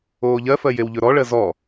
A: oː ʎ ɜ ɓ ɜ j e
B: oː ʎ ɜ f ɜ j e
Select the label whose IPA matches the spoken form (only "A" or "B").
B